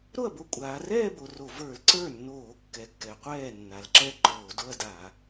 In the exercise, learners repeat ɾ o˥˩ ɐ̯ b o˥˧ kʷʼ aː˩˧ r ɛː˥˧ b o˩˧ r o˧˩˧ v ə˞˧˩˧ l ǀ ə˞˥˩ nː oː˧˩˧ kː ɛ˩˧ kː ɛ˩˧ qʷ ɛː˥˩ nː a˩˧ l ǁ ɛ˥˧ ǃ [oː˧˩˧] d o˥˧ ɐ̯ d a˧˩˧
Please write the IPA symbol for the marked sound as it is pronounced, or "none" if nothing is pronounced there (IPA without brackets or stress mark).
oː˧˩˧